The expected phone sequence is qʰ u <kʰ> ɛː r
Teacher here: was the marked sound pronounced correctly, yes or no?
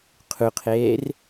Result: no